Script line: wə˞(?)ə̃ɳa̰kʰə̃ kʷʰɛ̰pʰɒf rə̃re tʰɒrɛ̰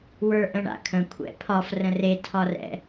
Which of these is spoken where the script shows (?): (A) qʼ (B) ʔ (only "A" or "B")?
B